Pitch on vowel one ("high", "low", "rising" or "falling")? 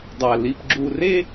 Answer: low